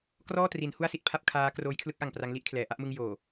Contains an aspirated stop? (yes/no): yes